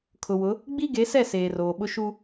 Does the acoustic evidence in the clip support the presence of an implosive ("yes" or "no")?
yes